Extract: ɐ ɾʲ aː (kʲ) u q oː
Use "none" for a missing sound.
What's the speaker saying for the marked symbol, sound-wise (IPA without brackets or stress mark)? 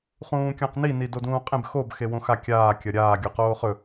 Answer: ɡʲ